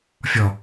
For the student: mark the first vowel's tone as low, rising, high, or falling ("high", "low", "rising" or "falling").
low